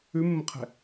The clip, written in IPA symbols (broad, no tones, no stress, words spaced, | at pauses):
ʉmːəqʰɛ̤